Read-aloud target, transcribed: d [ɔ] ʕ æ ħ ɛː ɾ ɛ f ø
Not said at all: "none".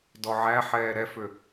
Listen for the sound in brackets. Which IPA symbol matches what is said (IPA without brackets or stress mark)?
ɔ